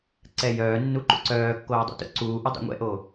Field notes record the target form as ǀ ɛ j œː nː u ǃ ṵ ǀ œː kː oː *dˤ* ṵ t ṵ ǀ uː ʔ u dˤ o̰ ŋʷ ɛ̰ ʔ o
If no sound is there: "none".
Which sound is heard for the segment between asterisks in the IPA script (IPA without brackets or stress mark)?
dˤ